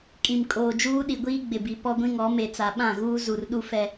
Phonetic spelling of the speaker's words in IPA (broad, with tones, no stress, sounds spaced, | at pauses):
kʼ ĩ˨ m kʼ oː˨ d͡ʒ uː˦ ɗ i˨ ɡʷ iː˦ ɡ͡b ɪ˨ b i˨ p ɔ˦ ɡʷ ĩ˦ ŋ ɔ˨˦ m e˨ t͡s a˨ ɓ ã˦˨ ɣ uː˦ z u˨ r ɗ u˦ f ɛ˦